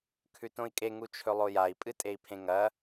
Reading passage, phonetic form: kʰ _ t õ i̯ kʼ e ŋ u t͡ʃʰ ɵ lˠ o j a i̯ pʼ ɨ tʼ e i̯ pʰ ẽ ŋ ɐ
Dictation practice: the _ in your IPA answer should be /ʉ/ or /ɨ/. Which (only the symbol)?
ʉ